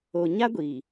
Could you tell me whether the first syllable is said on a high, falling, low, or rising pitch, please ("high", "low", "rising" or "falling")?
low